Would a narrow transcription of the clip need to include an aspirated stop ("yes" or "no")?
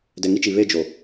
no